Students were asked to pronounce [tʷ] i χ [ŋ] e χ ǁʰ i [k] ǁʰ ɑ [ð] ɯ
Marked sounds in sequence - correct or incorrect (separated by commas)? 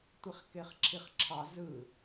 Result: correct, incorrect, incorrect, incorrect